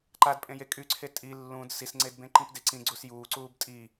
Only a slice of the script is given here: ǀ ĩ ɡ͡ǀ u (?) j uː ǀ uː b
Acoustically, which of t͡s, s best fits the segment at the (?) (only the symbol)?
s